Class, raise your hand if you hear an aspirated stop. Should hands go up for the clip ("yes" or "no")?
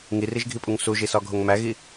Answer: no